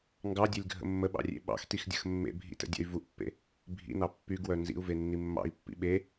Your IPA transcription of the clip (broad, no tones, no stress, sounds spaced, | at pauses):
ŋ ɡ ɑ dʲ e lʲ ɡʱ ə̰ mː ə ɓ ɑ̰ rʲ ḛ ɓ ɑ̰ x t i x dʲ ə̰ x mː ḛ bʱ ḭ t ə̰ dʲ ə̰ y̯ v u ʔ pː ḛ | bʱ ḭ n ɑ pː y ɡ w œ n z ḭ u̯ v e nː i mː ɑ̰ i̯ pː ḭ ɓ e